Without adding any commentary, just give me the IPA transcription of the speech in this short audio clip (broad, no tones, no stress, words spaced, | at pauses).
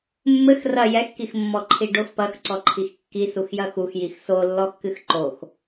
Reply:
mːɘx rɐ jɛxkix mːɔǃʰiɖox pɐxǀɔǃʰix kːi suxjɐxux jixsolːɔxkɨx ǃox